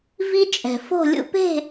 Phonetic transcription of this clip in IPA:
v i˦ t͡ʃʼ ɛ̤˨ f o̤˦˨ lʲ ṵ˦ p e̤˦˨

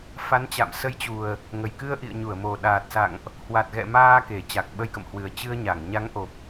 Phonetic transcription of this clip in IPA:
f a˨˦ n t͡ɕ a̰˧˨ m s ə˧ j t͡ɕ u˨˩ ə̯ | ŋ ə˨˩ j k ɨ˧ ə̯ ʔ ḭ˧˨ ə̯ ɲ u˧˩ ə̯ m o˨˩ ɗ aː˨˩ t̚ s a̰˧˨ ŋ ʔ | h w a˨˩ t̚ ɣ ɛ̰˧˨ m aː˧ k e˧˩ t͡ɕ a˨˩ k̚ ɓ ə˧ j k ə̰˧˨ m h w ɨ˨˩ ə̯ t͡ɕ ɨ˧ ə̯ ɲ a˧˩ ŋ ɲ a˨˦ ŋ ʔ o˨˩ p̚

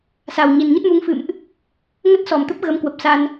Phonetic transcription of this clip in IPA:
s a˨˩ w ɲ i˨˩ n ɲ ə˦˥ t̚ m u˨˦ ŋ f ɨ̰˧˨ m ʔ | ŋ ə˦˥ t̚ s ɔ˨˩ m t̪ ə˦˥ p̚ ɣ ə˨˦ m k w ə˨˩ p̚ s a˧ n

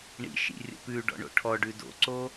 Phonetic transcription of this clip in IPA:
ɳ ḭ ʃ ḭ rʲ ə̰ p ʉ ɖ ɔ̰ ɳ o̰ ʈʰ ɔ ɖ ʉ d o̰ ǀ o

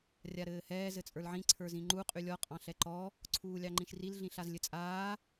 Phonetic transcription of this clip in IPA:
rʲ a ɾ ɘː h ɛː z ɘ t͡sʼ ə˞ l ʕ ĩ ǀʰ ə˞ z ĩ ŋ͡ǃ u qʼ y lʲ ɔ qʼ ɑ̃ ɬ ɛ ǃ ɔ | ǀʰ uː lʲ ɑ ŋ͡ǃ ĩ ʃ r i l ɮ ĩ ɬ a z lʲ ɘ t͡sʼ aː

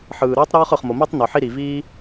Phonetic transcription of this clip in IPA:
ħ ɯː˩ ɾ ɯː˥ tˤ ɾ ɔː˥ χ ɯ˩ χ m o˩ m i˥ tˤ n o˩ ħ i˥ ɾ i˩ v iː˥

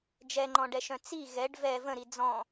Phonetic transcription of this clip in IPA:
d͡ʒ ɛ ŋ͡ǃ ɔ̃ ɖ ɛ ʃ œ̃ t͡s i ɣ ɛ ɖ v ɛ v ə̃ ɾ i d͡z ɔ̃

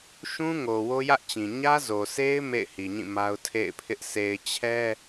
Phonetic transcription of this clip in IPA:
ʃ ũ˦ ŋ o˨ w o˦ j ä˦ ʔ t͡ɕ ĩ˨ ɲ ä˦ z o˨ sʰ e˦ ɪ̯ m ḛ˦˨ ɪ̯ h i˨ ɲ ĩ˦˨ m a˦ ʊ̯ tʰ ḛ˦˨ ɪ̯ pʰ ɪ˦ ʔ s e˨ ɪ̯ t͡ɕʰ ɛ˦

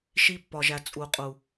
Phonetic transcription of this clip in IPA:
ʃ i˧ pː ɒ˨ ʒ æ˨ t͡sʼ u˨ qʼ u˨

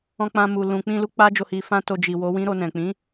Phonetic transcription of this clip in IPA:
ɔ̃˧ k͡p ã˧ m u˨ l ũ˨ k͡p ĩ˧ l u˧ k͡p a˦ d͡ʒ o˦˨ h i˧ f ã˦ t o˧ d͡ʒ i˨ w o˨˦ w ĩ˦ ɾ o˧ n ɛ̃˨ k͡p ĩ˨˦

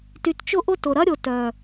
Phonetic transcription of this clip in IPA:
t y˨ t t͡ʃ ʊ˧ ʔ ʊ˧ t ʊ˨ ɾ ɐ˦ ɾʲ ʊ˨ t œ˨

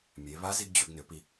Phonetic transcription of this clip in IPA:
mʲ e˩˧ β a˧˥ z i˧ ɡ d͡ʑ ʏ˩˧ ɡ n ʏ˩˧ p i˩

